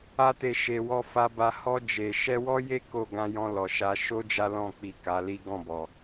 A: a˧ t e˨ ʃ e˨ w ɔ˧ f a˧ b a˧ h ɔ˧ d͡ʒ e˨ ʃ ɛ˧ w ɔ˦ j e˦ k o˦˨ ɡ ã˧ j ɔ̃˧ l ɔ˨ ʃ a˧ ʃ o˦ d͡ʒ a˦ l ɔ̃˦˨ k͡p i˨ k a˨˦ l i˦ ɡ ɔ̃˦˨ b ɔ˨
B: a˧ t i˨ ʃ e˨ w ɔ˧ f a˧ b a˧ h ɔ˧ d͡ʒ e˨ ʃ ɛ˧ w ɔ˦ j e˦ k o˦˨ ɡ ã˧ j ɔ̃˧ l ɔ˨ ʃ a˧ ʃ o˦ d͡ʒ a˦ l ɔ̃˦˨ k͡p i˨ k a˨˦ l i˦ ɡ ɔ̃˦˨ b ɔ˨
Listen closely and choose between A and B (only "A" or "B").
A